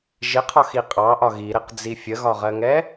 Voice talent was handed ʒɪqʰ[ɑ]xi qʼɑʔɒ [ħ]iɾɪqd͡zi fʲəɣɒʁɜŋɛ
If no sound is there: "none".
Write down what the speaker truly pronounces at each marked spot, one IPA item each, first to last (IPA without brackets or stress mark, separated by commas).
ɒ, ɣ